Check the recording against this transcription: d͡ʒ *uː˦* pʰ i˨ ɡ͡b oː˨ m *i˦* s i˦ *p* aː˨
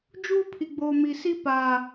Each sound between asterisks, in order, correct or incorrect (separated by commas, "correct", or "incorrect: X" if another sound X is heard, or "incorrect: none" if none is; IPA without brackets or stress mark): correct, incorrect: i˨, correct